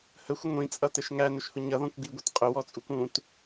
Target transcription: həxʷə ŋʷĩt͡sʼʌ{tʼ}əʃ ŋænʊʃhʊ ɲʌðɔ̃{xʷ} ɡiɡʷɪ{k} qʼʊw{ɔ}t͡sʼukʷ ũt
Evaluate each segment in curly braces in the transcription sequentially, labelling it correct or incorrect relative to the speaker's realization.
incorrect: t, incorrect: kʷ, incorrect: t, correct

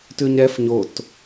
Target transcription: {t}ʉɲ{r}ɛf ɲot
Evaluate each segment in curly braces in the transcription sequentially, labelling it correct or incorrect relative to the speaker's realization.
correct, incorrect: ɾ

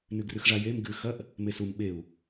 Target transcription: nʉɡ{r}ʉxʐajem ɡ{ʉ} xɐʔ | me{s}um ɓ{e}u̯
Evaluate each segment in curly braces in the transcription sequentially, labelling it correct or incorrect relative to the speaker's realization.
correct, correct, correct, correct

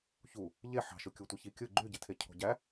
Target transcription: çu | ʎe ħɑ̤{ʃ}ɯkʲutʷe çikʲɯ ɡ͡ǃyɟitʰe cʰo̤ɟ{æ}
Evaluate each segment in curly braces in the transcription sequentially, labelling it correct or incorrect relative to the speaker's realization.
correct, correct

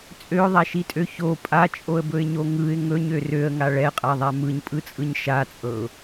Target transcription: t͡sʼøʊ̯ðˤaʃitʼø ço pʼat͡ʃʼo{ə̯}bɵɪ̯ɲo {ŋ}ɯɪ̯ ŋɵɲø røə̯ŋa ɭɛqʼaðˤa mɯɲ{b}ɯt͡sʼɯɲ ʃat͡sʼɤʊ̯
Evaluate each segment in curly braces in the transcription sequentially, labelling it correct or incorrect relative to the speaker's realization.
correct, correct, incorrect: pʼ

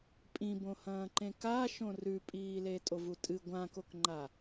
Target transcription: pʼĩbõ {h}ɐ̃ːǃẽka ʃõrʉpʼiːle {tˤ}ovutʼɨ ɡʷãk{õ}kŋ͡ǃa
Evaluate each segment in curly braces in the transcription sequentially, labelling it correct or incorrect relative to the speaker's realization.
correct, incorrect: tʼ, incorrect: o

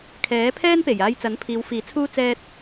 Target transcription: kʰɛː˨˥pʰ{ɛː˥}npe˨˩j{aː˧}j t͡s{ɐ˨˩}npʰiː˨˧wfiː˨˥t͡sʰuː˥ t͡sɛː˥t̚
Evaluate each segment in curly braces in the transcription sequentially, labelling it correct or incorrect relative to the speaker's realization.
correct, correct, incorrect: ɐ˨˥

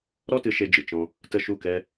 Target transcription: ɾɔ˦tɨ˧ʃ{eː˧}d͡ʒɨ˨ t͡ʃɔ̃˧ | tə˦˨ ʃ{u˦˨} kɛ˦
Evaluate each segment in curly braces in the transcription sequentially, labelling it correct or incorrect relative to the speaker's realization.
incorrect: e˧, correct

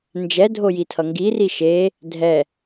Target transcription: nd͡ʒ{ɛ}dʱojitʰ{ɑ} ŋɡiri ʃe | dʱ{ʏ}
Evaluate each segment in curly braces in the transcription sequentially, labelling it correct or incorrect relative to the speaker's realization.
correct, incorrect: ʌ, incorrect: ɛ

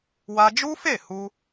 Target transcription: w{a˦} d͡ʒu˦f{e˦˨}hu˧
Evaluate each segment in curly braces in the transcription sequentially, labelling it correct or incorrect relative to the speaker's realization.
correct, correct

